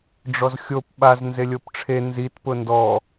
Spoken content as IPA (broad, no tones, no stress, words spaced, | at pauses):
ɖ͡ʐɔzxʲop ɓaz nzelʲopʈ͡ʂʰe nzit pʊndɔ